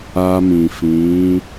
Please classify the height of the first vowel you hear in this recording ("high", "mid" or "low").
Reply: low